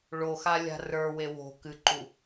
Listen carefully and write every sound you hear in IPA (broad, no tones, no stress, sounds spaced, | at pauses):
ɭ o x a lʲ a̤ r ə˞ w e w o̤ k ɨ ǃ u